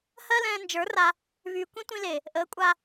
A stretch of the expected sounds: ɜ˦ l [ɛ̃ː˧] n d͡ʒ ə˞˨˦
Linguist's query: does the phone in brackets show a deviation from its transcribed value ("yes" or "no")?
no